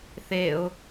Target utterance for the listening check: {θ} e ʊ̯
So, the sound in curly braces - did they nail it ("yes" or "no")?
yes